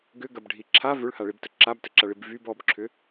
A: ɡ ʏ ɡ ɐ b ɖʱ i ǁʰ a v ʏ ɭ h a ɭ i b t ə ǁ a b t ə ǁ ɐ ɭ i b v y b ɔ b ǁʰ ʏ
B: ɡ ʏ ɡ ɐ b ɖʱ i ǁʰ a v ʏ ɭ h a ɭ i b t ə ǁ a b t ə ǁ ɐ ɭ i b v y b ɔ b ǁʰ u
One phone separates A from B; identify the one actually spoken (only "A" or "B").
A